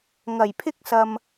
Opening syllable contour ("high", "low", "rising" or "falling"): low